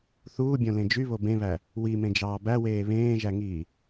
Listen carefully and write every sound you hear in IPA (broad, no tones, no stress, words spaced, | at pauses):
θuːbʲõlẽ d͡ʒyβo bẽβæ | wimẽd͡ʒɑː bæweː βẽːʒæŋiː